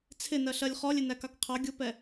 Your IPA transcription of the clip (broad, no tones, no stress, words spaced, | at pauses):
t͡sʰɪnɜɬɜlʲ χɔlʲɪ nækɑkqʰɑ ɡʲʊpɛ